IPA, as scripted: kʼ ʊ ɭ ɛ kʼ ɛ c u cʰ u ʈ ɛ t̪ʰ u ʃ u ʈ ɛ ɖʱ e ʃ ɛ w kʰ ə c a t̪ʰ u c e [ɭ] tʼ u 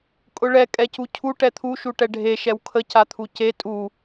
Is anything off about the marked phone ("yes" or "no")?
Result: yes